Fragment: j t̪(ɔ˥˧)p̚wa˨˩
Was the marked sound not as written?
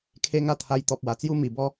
yes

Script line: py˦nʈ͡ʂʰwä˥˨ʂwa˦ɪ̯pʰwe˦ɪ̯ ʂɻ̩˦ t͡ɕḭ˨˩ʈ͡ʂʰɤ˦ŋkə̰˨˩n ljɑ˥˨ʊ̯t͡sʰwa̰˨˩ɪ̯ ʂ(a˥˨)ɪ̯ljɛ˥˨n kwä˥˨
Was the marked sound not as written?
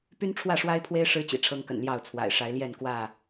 yes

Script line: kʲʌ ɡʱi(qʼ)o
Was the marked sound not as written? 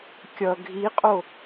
no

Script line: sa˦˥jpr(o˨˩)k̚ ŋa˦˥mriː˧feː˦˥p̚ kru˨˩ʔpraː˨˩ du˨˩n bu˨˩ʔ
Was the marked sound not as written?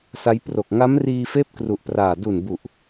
no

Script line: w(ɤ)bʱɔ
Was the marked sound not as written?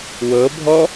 no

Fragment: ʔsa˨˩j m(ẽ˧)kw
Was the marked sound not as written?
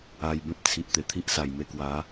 yes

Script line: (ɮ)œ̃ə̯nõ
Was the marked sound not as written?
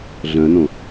no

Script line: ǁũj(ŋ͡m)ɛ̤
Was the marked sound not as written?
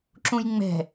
no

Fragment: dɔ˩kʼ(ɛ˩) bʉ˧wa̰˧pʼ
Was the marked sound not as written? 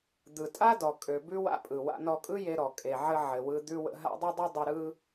yes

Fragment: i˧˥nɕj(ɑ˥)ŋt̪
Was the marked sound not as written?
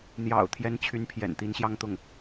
yes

